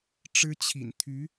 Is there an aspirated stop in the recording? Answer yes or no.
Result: yes